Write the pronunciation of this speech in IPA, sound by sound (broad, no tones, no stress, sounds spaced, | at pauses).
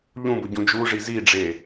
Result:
ʎ ũ b ʊ ɟ ũ d͡ʒ u ʐ i z i ɖ͡ʐ e